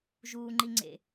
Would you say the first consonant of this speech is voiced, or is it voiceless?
voiced